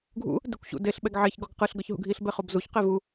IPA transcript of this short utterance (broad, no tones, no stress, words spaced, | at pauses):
ɡʱṵ | dekʷɕṵdeɬ ɓɛɡʕeç ɡɔɡqɯɬ ɡɤçɦṵɡʱiɬ bɛχobzuç qevu